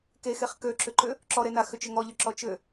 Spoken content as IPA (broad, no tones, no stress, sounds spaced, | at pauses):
k e x e χ k ø ǁ ʏ ǃ ʏ | ǁ ɔ ɾ e n a x ʏ t͡ʃ ʏ ŋ ɔ ʎ ʏ ǁ ɔ t͡ʃ ʏ